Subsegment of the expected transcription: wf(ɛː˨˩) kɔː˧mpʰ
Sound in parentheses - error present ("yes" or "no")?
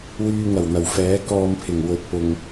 yes